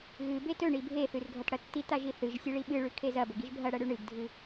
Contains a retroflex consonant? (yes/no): yes